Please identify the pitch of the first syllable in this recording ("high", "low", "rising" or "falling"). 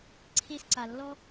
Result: high